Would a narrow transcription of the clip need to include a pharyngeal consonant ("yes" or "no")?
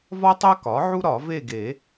yes